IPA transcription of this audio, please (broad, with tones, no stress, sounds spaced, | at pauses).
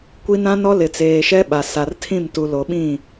kʷ i˦ n ã˦ n ɔ˦ l ɪ˨ t͡s eː˨ ʃ ɛ˦ ɓ a˨ s a˨ r tʰ ĩ˦˨ m t u˨ l o˨ ɓ ĩ˦˨